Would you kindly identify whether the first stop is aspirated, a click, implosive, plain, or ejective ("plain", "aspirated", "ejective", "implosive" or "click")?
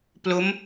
plain